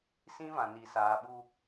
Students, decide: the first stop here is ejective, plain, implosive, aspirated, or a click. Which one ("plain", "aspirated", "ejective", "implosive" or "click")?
implosive